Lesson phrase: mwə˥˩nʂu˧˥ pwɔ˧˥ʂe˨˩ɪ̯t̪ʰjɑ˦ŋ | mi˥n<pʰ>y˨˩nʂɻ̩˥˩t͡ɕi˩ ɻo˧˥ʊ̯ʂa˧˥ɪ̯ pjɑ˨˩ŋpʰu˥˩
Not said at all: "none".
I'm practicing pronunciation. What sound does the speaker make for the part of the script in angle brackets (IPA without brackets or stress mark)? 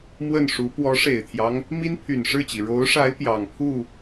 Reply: pʰ